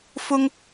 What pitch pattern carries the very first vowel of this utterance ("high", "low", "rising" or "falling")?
high